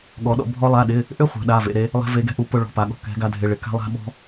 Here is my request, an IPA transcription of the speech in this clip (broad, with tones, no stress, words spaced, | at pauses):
ɠɔ˧˥ɗɔ̰˥ bʱɔ˥ lˠa˧˥˧ɗɪ˧˥˧ | ʔʏ˥ χʷɛ̤˧˥ɗa˧˥˧ vḛ˧˥˧ɾe˥ | lˠɛ̤˥ve˧˥ɡɛ̤˥ʔu˧˥ pʊ˥ ɭɔ̤˧˥˧pa˧˥ɠɔ̤˥ kɛ̤˧˥ɡa˧˥ dʱɪ˧˥˧ɭɪ˧˥˧ ka̤˥lˠa̤˥ɓɔ̤˥